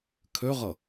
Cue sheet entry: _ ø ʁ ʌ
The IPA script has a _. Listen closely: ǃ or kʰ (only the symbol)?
kʰ